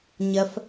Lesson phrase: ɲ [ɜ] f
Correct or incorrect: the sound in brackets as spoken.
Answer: correct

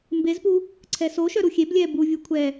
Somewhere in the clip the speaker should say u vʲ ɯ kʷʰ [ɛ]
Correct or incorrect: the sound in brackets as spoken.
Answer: correct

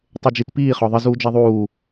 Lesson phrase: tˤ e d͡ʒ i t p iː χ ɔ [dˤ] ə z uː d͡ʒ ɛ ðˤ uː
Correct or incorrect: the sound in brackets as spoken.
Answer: incorrect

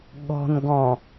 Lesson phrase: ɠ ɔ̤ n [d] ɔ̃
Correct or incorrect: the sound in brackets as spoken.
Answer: incorrect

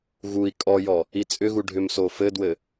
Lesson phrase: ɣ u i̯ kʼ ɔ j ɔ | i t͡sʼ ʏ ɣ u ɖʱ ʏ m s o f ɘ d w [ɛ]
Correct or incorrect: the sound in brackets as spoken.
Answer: incorrect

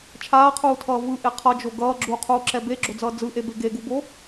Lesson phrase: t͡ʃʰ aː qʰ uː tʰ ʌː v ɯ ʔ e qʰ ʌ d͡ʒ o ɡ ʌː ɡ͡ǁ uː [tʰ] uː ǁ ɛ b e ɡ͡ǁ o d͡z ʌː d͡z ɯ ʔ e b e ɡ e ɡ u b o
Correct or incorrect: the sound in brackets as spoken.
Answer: incorrect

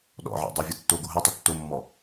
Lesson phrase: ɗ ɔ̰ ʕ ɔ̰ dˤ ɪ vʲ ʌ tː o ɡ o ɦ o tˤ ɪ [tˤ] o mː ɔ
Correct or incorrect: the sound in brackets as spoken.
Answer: incorrect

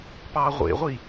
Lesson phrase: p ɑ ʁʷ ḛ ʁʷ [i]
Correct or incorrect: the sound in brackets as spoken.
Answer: correct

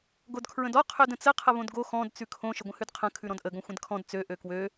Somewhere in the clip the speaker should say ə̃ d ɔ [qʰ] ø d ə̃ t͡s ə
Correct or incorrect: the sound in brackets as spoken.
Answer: correct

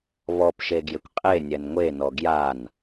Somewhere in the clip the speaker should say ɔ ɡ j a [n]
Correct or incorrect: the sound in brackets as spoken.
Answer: correct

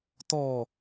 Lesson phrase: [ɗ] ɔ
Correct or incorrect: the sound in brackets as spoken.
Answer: incorrect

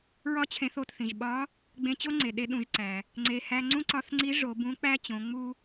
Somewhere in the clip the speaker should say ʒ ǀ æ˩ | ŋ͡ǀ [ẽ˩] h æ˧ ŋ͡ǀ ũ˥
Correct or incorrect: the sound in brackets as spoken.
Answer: incorrect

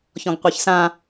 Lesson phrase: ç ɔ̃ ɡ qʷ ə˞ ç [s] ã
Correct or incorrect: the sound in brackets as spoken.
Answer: correct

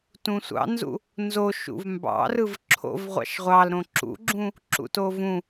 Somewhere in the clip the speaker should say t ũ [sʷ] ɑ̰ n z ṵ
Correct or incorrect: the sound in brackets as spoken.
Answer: correct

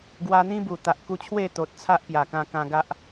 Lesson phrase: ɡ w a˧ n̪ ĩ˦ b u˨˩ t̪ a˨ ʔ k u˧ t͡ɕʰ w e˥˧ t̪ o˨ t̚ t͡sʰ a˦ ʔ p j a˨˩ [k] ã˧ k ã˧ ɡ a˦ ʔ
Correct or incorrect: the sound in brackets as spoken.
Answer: correct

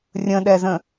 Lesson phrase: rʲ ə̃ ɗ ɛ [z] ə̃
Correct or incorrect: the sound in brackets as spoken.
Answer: correct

